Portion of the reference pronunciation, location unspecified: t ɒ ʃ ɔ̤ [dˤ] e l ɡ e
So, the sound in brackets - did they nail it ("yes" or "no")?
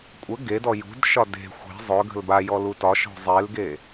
no